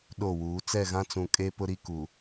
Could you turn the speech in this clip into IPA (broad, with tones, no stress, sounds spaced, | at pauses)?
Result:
ɗ o˦˨ w uː˨˦ t͡s ɛ˦˨ ɣ ã˦ t͡s ũ˨ kʼ e˦ p ʊ˦ ɾ i˦ k u˨